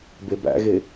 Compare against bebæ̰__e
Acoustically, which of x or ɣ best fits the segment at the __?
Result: ɣ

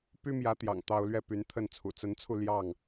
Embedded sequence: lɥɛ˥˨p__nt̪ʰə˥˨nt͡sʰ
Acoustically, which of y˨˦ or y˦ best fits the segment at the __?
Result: y˨˦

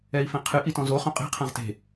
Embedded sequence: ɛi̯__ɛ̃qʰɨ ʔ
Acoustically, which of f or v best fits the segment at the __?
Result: f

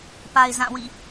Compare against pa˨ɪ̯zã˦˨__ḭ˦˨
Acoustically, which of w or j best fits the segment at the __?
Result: w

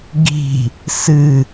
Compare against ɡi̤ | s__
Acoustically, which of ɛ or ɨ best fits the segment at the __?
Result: ɨ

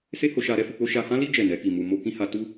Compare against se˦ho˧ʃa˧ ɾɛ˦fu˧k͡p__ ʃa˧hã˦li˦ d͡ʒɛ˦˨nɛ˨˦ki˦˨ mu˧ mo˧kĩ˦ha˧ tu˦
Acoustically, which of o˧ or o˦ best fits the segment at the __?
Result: o˦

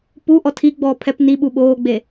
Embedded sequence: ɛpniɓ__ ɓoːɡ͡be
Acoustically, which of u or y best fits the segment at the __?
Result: u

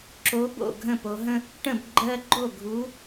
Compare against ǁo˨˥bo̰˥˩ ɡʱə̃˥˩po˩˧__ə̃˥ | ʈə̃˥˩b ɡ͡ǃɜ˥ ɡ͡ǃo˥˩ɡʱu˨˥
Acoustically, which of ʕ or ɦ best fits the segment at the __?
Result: ɦ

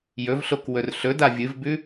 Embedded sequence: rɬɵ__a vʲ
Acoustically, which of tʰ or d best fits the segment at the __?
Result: d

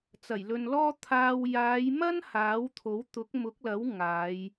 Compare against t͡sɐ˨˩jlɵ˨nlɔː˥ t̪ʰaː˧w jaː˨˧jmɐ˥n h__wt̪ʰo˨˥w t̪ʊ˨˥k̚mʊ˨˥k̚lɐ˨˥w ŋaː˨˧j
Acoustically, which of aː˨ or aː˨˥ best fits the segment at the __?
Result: aː˨˥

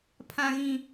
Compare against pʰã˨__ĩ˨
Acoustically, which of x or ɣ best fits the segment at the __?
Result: ɣ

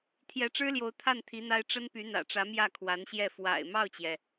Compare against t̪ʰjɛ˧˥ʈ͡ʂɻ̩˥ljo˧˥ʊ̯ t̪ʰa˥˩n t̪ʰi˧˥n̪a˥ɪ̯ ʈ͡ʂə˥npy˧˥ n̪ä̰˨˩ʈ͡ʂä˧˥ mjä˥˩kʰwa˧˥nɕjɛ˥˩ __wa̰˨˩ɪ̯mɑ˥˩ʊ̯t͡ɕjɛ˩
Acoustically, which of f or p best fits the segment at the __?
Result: f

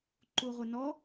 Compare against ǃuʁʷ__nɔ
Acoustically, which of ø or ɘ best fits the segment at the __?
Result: ɘ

